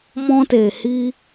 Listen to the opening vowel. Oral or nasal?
nasal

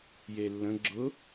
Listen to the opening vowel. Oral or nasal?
oral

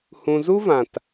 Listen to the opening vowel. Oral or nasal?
nasal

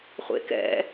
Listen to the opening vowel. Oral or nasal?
oral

